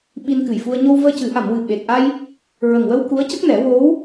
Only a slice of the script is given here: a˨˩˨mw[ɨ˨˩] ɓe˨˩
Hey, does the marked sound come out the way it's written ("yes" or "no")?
yes